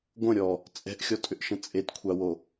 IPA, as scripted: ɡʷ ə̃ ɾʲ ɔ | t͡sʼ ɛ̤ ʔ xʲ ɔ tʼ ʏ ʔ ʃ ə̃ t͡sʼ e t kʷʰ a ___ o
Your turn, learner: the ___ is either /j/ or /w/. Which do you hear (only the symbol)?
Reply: w